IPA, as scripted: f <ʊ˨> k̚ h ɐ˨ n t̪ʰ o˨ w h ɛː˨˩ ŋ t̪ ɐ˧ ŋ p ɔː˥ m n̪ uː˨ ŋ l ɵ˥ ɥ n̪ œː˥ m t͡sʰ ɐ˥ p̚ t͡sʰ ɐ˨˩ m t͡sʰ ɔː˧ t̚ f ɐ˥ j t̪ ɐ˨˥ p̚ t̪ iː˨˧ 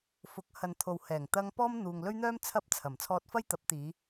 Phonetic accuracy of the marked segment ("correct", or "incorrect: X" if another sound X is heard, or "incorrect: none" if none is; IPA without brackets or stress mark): incorrect: ʊ˨˥